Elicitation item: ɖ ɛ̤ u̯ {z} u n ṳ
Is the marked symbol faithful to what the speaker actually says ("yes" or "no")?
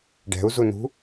yes